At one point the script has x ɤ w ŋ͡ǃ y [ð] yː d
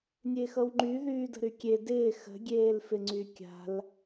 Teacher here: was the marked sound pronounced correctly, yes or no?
yes